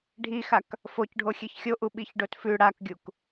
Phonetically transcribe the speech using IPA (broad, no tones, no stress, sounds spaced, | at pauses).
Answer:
ɖʱ i x a k | f o c ɖʱ o xʲ e ç xʲ o ʔ u ɓ i ç ɖ o t f ʉ ɽ a k ɡʲ u k